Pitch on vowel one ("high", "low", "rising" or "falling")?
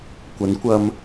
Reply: rising